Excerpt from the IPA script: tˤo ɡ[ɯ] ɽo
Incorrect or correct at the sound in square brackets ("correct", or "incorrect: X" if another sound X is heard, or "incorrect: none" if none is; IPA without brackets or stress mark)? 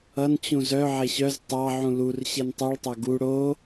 incorrect: u